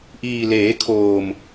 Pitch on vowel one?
low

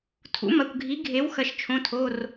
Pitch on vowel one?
rising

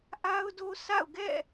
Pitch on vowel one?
high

